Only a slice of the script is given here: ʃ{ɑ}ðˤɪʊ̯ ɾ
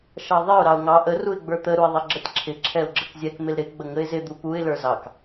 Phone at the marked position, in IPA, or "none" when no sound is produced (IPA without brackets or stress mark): ɑ